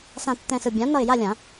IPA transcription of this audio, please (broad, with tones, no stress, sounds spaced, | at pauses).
s ã˧˩ tː ɛ̃˧˩ s ɯ˧˩ bʲ ã˩˥ n ʌ˧˩ ɪ̯ j a˥˨ lʲ ã˨˩˦